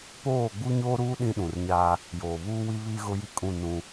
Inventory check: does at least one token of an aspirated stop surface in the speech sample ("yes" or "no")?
no